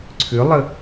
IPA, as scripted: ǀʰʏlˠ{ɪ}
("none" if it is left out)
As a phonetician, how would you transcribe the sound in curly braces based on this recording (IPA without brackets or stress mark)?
ə